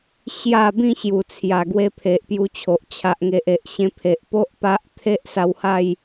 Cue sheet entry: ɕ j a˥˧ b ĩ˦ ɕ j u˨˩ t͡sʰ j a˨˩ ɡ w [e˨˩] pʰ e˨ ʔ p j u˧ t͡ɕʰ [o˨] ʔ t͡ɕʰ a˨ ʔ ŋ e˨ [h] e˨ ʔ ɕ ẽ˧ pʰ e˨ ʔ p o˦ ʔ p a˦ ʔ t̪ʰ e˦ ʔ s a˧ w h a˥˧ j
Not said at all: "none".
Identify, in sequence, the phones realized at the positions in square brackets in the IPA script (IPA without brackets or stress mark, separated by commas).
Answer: e˧, o˨, ʔ